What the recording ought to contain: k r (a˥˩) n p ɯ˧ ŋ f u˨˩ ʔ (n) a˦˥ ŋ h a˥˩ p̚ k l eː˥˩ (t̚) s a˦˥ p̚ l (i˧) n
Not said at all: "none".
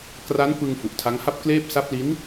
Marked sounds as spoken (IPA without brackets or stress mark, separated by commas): a˦˥, tʰ, p̚, i˦˥